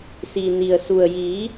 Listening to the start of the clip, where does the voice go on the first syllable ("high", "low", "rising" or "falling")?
low